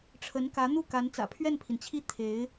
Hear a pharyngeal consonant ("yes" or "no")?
no